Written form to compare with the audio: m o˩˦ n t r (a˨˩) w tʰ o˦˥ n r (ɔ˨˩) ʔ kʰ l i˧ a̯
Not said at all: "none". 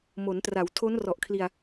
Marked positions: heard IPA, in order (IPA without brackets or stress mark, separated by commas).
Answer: a˩˦, ɔ˨˩